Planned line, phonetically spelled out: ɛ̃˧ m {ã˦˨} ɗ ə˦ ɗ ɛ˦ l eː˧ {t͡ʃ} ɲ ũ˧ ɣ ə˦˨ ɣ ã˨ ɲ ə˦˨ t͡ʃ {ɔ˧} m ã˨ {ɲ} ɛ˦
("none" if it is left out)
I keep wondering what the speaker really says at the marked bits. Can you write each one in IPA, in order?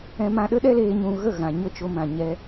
ã˧, none, o˧, ɲ

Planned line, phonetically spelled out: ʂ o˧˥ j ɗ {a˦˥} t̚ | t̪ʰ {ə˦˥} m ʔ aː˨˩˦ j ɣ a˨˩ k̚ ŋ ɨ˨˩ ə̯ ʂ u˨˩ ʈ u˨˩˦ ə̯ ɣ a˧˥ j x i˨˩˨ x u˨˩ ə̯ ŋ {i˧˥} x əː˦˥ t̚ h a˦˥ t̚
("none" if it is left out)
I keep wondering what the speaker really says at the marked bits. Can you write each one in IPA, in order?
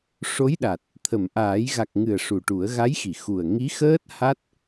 a˨˩, ə˨˩˨, i˧˥

